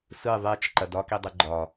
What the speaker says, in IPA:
s ɯ ðˤ e t͡ʃ ǃ ɐ d ɒ k i dˤ ɯ ɡ͡ǃ ɒ

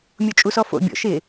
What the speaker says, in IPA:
mʲ o t͡ʃʼ u s ɔ f o̰ bʲ ɔ̰ ʃ ɪ

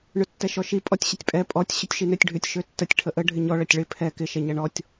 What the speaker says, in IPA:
ɳ ʏ tː ɛ ʃ ɔ ʃ i pʼ ɔ tʲ ɕ ə tʲ pʼ ɛ pʼ ɔ tʲ ɕ ʏ tʲ ʃ i n ø tʲ ɖʱ ʏ tʲ ʃ ø tː ə tʲ ʈʰ ə ʔ ə ɖʱ ɪ ɲ ɔ ɭ ɐ tʲ ɭ ɪ pʰ ɛ k ɪ ʃ ɛ ɲ ɐ ɳ ɔ tʲ

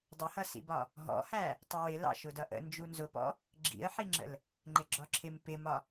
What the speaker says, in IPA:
dˤ ɪ h ʌ s ḭ b ɒ | ɦ ɔ̰ h æ | tˤ ʊ w ɪ l ɑ̰ ʃ ʊ d ʌ ʔ ə̰ n d͡ʒ u n z ʊ p ɔ̰ | ɡ͡ǁ ḭ ə̯ ħ i ŋ͡ǁ ə̰ l | ŋ͡ǃ ɪ ɡ͡ǁ ɒ ǁʰ ɪ m p ɪ m ɒ

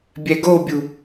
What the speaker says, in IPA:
bʲ ɛ ɡ o bʲ u

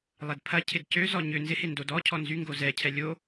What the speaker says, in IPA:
lˠ ɛ d pʰ ɐ cʰ ɪ d c ø z ɔ ɲ ʏ n z ɪ h e n d o d ɔ cʰ ɔ n z y ŋ ɡ o z ɛ cʰ ɛ lʲ o

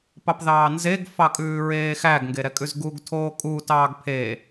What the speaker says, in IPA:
p ɑ p ð ɑː n z e ɡ f ɑ kʼ ʉː ɹ eː x æ ɡ ŋ ɡ e ɾ ɛ kʼ ʉ z ɡ u ɡ tʰ oː kʼ u t ɑː ɡ pʰ e

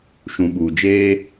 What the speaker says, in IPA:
ʃ ũ˨ ɓ uː˨ d͡ʒ eː˦

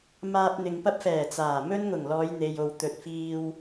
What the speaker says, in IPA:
m aː˧ p̚ n̪ ɪ˨ ŋ p ɐ˥ p̚ f ɛː˨˩ t͡s aː˨˩ m ɵ˥ n ŋ ʊ˨˩ ŋ l ɔː˨˧ j n̪ e˨ j o˨ w t̪ ɵ˨ t̚ f iː˧ w

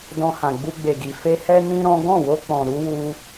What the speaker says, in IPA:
d ɔ̃˧ h ã˨ ɡ͡b u˧ ɡ͡b e˨ ɡ i˨ f e˧ h ɛ˦ n ĩ˦ ɾ ɔ̃˦ ɡ ɔ̃˦˨ w o˧ k͡p ɔ̃˨ ɾ u˧ w u˧

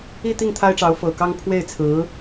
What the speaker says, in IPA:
i˥˧ t̪ i˥˩ ŋ t̪ʰ a˥ ɪ̯ ʈ͡ʂ ɑ˧˥ ʊ̯ f ɤ˨˩ k ɑ˥ ŋ pʰ w e˥˩ ɪ̯ t͡sʰ ɹ̩˧˥

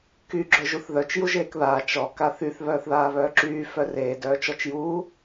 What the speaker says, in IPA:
k y ɡ͡ǁ œ ʒ u θ ð œ t͡ʃ j u ʒ eː k ð aː t͡ʃ ɔ k a θ y θ β œː θ ð aː β œː ǁ yː f œ r eː d œː t͡ʃ ɔ t͡ʃ j uː

